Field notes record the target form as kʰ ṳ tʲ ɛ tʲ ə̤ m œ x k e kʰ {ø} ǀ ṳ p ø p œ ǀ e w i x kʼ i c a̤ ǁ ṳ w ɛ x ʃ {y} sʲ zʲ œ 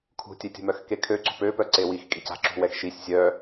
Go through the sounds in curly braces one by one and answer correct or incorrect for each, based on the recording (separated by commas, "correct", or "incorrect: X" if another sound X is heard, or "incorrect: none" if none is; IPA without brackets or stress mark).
correct, incorrect: i